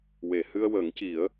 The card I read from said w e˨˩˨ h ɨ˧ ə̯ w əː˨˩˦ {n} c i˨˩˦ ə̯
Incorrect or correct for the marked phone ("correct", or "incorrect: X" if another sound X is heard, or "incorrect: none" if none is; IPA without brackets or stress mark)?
incorrect: ŋ